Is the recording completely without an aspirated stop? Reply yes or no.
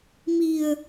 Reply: yes